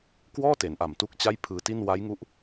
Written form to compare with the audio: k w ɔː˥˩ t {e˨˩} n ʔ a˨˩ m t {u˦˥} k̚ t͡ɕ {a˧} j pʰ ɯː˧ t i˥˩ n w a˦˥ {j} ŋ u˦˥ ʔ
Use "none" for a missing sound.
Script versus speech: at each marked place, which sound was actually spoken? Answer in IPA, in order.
e˩˦, u˦˥, a˥˩, j

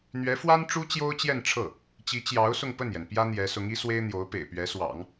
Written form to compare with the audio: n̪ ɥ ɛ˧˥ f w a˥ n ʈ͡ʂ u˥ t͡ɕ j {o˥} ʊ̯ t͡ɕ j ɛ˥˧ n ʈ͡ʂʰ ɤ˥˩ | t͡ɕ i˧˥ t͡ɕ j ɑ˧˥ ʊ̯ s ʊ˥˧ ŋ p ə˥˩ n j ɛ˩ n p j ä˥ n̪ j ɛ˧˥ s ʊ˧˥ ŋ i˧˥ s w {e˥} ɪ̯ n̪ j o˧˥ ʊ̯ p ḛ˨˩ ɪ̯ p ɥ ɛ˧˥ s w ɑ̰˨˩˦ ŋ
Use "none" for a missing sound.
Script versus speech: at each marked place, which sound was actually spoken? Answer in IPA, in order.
o˥, e˥

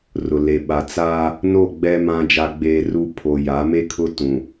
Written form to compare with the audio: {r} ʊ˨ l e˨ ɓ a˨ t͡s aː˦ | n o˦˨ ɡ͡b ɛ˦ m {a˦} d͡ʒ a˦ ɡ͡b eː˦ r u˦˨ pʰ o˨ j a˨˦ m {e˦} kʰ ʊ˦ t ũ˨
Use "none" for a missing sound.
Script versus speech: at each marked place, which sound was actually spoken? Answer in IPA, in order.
r, ã˦, e˦

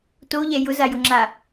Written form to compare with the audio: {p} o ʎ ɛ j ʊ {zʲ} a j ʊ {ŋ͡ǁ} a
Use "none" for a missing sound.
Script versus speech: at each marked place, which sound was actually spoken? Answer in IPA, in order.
t, z, ŋ͡ǁ

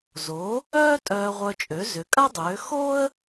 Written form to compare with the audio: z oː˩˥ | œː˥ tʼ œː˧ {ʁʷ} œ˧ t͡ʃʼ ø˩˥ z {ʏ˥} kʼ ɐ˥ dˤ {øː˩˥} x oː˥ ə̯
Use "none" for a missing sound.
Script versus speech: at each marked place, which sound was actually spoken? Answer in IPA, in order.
ʁʷ, ʏ˩˥, øː˩˥

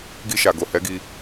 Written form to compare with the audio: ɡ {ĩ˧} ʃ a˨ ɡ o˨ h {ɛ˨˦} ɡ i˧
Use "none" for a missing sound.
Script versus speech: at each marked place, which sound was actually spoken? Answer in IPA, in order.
i˧, ɛ˨˦

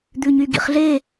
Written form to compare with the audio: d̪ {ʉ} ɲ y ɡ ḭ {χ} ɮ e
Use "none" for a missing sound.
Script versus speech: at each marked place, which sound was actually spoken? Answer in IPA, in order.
ʉ, χ

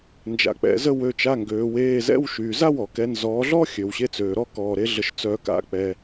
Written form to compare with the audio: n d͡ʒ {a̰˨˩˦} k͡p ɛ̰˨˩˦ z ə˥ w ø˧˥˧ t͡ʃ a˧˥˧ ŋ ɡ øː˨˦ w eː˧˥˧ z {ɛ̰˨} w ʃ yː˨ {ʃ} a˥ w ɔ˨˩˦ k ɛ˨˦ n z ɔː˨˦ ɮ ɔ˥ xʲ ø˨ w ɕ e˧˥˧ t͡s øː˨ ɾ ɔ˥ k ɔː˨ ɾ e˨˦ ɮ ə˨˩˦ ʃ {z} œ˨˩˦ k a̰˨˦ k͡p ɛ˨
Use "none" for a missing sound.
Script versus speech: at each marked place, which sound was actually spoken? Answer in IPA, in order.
a̰˨˩˦, ɛ̰˧˥˧, z, t͡s

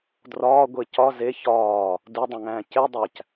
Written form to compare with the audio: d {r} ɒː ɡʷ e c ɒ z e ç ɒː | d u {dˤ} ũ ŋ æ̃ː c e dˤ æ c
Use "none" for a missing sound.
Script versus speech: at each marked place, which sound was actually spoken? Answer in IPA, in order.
r, dˤ

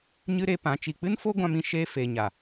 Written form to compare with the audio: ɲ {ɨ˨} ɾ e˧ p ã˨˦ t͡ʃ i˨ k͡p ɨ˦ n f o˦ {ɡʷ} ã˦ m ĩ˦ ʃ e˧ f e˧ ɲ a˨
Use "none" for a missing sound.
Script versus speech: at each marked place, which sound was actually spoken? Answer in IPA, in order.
ɨ˦, ɡʷ

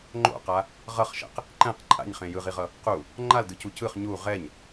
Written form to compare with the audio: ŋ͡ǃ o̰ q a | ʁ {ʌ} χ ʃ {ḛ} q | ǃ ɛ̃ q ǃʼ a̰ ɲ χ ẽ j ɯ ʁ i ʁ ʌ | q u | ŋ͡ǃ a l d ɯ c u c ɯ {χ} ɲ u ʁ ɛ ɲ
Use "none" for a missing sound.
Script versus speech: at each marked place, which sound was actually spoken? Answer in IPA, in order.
ʌ, ɛ̰, χ

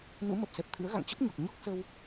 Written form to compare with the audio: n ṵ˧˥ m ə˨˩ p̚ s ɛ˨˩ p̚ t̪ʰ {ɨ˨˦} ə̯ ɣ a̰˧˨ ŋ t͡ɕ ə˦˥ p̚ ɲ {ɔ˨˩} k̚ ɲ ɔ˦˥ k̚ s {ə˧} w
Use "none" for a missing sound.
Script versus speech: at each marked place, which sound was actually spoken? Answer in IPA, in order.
ɨ̰˧˥, ɔ˨˩, ə˧

